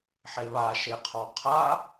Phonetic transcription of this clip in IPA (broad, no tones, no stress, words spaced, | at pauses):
ħeβa ʃeqʰɔqʰa